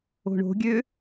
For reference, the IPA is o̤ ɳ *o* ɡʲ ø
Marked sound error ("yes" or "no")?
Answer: yes